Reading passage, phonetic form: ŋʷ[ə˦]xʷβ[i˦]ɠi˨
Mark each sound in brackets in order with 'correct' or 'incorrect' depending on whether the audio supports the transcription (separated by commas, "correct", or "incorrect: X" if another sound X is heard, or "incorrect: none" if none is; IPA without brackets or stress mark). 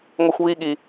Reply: correct, correct